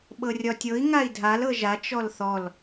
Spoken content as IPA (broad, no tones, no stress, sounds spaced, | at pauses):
ɓ ɤ rʲ ɒ tʲ ɤ i̯ ŋ a i̯ dʱ a l ɤ ʒ a t͡ʃ ɔ l θ ɔ l